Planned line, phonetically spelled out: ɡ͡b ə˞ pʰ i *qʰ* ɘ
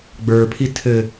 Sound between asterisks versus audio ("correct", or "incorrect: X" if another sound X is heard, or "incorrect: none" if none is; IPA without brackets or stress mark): incorrect: tʰ